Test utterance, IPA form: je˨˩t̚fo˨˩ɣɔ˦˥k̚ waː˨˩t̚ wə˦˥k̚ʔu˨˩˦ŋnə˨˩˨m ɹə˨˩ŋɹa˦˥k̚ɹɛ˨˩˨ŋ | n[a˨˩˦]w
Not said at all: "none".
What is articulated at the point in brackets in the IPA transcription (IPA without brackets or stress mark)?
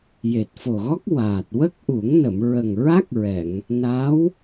a˧˥